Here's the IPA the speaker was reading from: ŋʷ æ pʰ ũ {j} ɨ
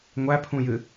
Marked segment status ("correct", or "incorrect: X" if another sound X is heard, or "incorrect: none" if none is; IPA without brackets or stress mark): correct